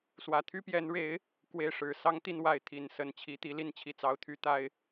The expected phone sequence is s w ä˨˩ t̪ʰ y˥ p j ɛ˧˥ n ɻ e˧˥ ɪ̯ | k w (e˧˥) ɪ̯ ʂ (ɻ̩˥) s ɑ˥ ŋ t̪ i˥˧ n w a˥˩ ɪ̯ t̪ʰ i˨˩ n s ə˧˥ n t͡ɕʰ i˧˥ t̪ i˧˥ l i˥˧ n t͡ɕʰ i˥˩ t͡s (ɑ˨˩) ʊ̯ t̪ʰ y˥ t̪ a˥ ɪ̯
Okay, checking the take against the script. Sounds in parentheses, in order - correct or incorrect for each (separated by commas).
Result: incorrect, incorrect, incorrect